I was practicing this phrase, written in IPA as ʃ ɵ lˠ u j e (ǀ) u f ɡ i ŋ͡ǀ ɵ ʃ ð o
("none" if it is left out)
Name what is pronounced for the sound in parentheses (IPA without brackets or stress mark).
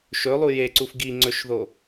ǀ